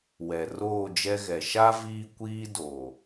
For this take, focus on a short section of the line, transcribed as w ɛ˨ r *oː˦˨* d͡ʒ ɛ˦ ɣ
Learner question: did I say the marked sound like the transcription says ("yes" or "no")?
yes